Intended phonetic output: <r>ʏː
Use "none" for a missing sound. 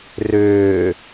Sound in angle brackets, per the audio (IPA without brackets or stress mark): r